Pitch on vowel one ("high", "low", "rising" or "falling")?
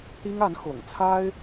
high